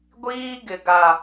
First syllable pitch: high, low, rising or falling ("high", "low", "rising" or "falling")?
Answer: high